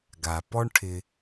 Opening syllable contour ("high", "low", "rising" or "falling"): low